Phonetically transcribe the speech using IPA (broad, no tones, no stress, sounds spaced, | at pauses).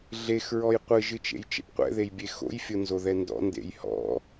ɮ e x ɹ ɔ j qʷ ɨ ʒ ɨ t͡ʃ ḛ j t͡ʃ ḛ p qʷ ɛ̰ ð e j bʲ e x o̰ j fʲ o n z o ð ɛ n d ɔ̰ n d ḛ j h ɔ̰